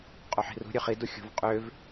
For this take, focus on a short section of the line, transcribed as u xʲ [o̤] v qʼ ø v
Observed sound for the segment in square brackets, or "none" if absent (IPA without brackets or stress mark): o̤